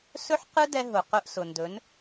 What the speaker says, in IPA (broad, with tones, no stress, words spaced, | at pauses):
sɵ˦ħqɯ˦dɛ˧ ɦʊ˨qʊ˧ʔsʊ˨ndɵ˨˦n